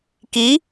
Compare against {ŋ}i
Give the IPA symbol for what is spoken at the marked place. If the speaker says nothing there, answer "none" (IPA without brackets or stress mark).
k